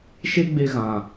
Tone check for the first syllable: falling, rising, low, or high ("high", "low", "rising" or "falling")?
high